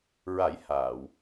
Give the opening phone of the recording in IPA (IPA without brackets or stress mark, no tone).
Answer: ɹ